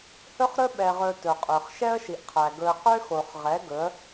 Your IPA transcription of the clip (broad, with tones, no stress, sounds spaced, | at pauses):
h ɵ˦ χ ɾ ɵ˦ ɓ ɛ˨ ʁ ɵ˨ t ɵ˨ qʼ ø˨ χ ʃ ɛ˦ ə̯ ʃ i˨ ʔ qʰ æ˨ ɡ ɵ˨ ə̯ q ø˦ x o˨ χ ʁ ɛ˨˦ ɡ ɵ˨˦ ə̯